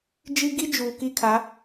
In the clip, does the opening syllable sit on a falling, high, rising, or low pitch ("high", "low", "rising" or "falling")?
high